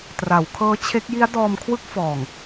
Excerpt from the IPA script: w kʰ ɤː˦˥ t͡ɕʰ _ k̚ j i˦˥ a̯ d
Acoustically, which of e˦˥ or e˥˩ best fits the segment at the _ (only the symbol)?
e˦˥